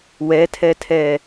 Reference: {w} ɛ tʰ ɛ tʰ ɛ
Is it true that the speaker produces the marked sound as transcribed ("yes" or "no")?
yes